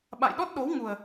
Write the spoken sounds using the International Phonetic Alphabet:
ɓ a̰˧˨ j ɗ ɔ˦˥ t̚ ɗ o˨˦ w ŋ u˨˩ ə̯

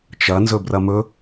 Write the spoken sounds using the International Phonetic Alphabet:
t͡ʃ ɐ n z ɵ b r ɐ m ɵ

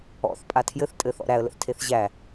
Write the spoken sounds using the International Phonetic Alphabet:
ɔ̰ θ pʼ a tʰ j ɘ θ tʼ ɘ θ ɔ̰ ɾ æ ə̯ l ə̰ θ tʰ e θ ʑ æ

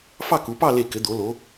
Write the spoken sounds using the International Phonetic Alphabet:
f ɑ˥˧ k u˩˧ p ɑ˥˧ l e˧˩ k ɘ˩˧ d̪ o˩˧ l o˩˧

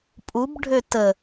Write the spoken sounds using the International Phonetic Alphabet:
pʼ u b ɖʱ ø t ə

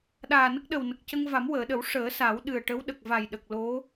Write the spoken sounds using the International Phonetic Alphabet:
ɗ aː˨˩ n ə˦˥ k̚ ɗ ə˨˩ w n ə˨˩ k̚ c ə˧ ŋ v a˨˩˦ m w əː˨˩˨ ɗ ə˨˩˦ w ʂ əː˨˩˦ s a˨˩˦ w ɗ ɨ˨˩ ə̯ ʈ ə˧˥ w ɗ ə˨˩ k̚ v a˨˩ j ɗ ə˨˩ k̚ l o˧˥

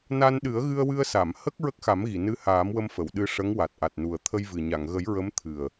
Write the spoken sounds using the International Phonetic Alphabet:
n a˧ n ɗ ɨ˨˩˦ ə̯ ɣ ɨ˧ ə̯ w ɨ˧ ə̯ s a˨˩˨ m h ə˦˥ k̚ ɹ ə˦˥ k̚ x a˨˩˦ m ɣ i˨˩˨ n ɨ˧˥ h aː˨˩˦ m w ə˧ m f ə˨˩˨ w ɗ ɨ˧ ʂ ə˧˥ ŋ w a˨˩ t̚ ʔ a˨˩ t̚ n u˨˩ ə̯ t̪ʰ ə˧ j v ɨ˨˩ ɲ a˨˩˨ ŋ ɣ ə˨˩˦ j ɹ ə˧˥ m t̪ʰ ɨ˨˩ ə̯

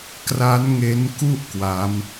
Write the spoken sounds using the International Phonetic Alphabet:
k r a˦˥ n ŋ e˦˥ n k u˥˩ ʔ k w a˦˥ m

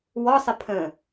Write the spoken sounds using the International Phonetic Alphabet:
w ɔ sˤ ɪ pʰ ə̃

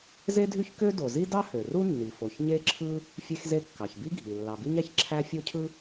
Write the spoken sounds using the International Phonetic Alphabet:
z e˥ dʱ y˥ ç k ø˥ d o˩ z i˥ d ɑ˥ h ø˩ r u˥ nː i˩ f o˩ ç ɲ e˥ ǁʰ ɯ˥ | fʲ e˥ x z e˥ kː ɑ˩ ç b i˥ ɡʱ i˩ lː ɑ˩ b i˥ ɲ æ˩ ç ǁʰ æ˥ fʲ o˥ cʰ ɯ˥

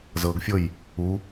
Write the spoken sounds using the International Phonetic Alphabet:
z ɤ ɡ fʲ ɤ j | u

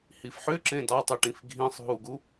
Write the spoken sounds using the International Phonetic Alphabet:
h i f ħ ʏ ǁ ẽ d ɑ tˤ i ʈ ĩ f ɡʱ ĩ sˤ ɦ u ɡ u

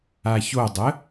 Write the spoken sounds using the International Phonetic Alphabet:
a ç o dˤ ə

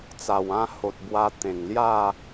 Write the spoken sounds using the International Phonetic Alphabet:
t͡s a˨˩ w ã˥˧ h o˨ t̚ b w a˧ t̪ ẽ˨˩ ŋ l j a˥˧

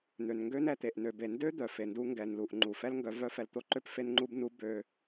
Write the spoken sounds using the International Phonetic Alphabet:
n̪ ø˨ n ŋ ɡ ø˦ n ɛ˨ t̪ e˨ ʔ n ø˨ b e˨ n d ø˦ d̪ œ˨ f e˨ n d u˦ ŋ ɡ ɛ˨ n l u˨ ʔ ŋ͡ǃ u˨ f ɛ˦ l ŋ ɡ œ˨˦ v œ˦ f ɛ˨ l t̪ o˦ ǃ ø˦ p f e˦ n ŋ͡ǃ u˦ b n u˦ b ø˦

